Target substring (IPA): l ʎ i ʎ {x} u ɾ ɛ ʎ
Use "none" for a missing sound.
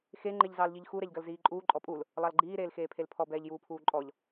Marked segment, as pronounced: x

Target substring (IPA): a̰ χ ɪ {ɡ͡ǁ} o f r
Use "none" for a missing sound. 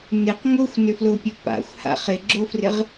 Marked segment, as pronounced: ɡ͡ǁ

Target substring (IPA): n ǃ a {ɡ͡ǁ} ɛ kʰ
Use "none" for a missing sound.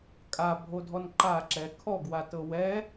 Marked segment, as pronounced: ǁ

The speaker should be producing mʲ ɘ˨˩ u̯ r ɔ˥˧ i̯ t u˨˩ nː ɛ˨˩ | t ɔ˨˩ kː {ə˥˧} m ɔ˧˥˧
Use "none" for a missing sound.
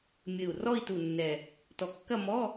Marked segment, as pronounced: ɐ˥˧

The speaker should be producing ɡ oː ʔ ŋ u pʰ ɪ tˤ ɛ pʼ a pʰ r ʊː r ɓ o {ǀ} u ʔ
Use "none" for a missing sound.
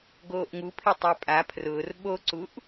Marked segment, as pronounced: ǀ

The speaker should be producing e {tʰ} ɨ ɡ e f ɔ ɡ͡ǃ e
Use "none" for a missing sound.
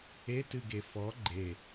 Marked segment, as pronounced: t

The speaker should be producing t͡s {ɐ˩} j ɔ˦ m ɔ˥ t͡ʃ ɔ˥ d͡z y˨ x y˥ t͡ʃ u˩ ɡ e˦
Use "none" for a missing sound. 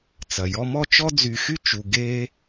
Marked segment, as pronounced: ɐ˩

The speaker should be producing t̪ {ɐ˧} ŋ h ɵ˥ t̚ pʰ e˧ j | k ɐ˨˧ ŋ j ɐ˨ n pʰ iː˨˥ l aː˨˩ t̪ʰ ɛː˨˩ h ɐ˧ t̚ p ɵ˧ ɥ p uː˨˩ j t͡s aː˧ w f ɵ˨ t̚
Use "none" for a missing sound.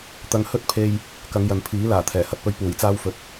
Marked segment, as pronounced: ɐ˧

